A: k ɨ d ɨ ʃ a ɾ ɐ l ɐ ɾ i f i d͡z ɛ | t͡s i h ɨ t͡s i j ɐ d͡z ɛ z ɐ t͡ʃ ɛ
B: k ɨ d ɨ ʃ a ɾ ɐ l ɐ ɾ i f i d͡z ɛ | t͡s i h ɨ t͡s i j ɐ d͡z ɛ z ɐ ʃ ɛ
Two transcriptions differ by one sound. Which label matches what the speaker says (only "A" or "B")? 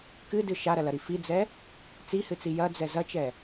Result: A